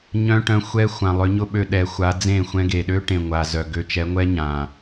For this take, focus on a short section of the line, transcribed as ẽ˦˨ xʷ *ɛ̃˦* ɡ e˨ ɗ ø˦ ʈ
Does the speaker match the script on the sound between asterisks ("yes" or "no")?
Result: yes